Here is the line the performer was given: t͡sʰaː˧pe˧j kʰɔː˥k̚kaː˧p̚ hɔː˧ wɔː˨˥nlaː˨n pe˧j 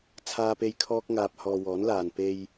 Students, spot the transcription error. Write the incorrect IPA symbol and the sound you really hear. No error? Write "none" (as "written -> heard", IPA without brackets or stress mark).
k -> ŋ